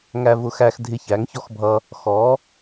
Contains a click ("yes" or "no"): no